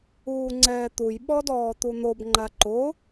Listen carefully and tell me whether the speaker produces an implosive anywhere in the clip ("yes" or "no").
yes